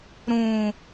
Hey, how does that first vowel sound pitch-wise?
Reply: low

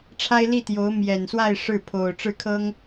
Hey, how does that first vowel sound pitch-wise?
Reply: high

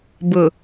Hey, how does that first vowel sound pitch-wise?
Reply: low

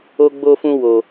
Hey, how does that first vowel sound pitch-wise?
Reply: high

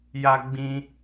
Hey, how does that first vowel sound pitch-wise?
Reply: high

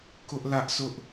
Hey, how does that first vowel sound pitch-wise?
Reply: high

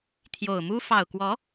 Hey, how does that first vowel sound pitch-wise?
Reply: low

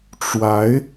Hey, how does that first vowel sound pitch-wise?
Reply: rising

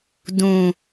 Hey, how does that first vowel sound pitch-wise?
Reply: low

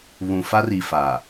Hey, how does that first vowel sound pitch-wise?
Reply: low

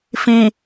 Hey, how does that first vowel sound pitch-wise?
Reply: low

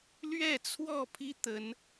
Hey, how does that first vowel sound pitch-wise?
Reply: falling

